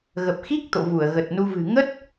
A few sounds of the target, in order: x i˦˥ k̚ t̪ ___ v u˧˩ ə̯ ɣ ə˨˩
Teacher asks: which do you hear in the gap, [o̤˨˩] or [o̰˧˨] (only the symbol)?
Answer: o̰˧˨